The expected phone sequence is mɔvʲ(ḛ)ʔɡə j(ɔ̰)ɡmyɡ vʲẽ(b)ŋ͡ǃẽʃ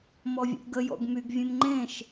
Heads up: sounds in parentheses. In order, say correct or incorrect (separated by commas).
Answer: correct, correct, incorrect